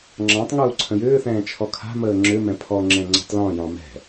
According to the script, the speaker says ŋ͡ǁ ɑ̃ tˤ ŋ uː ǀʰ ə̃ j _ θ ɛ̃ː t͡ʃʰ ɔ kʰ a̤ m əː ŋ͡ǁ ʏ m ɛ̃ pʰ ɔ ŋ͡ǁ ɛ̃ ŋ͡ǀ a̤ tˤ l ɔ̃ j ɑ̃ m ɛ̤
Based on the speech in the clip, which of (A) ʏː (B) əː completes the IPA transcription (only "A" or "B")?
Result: A